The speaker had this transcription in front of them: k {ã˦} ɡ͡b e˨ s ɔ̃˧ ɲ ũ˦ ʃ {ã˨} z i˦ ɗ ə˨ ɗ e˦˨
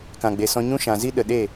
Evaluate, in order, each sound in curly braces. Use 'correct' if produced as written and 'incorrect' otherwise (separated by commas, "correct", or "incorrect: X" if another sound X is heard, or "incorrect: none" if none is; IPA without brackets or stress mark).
incorrect: ã˨, correct